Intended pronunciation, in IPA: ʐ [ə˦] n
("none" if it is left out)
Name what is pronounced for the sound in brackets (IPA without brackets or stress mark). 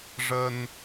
ə˦